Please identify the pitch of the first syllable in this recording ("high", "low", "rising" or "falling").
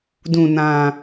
low